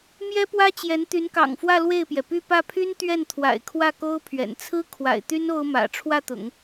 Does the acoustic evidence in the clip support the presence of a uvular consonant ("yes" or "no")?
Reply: no